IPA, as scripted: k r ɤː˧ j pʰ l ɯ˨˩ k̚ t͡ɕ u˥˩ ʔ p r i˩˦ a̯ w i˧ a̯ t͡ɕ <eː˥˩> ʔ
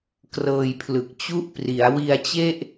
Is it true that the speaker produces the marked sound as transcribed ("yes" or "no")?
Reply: no